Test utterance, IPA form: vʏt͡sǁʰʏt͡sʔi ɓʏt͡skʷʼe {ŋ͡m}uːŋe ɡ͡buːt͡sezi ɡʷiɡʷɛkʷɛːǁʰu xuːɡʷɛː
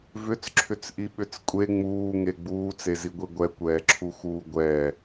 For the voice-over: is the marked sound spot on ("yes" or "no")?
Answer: yes